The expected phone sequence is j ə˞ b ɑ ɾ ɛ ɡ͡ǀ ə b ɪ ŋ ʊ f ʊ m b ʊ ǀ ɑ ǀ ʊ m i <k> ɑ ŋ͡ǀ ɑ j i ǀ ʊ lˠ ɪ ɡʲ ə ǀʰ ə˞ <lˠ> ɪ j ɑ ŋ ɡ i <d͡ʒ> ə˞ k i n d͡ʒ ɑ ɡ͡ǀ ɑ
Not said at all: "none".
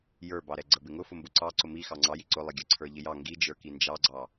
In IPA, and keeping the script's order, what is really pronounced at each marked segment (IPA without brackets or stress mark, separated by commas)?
x, ʎ, d͡ʒ